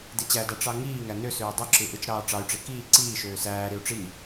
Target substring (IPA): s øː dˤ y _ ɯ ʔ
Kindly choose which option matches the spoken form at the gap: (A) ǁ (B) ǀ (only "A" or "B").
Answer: A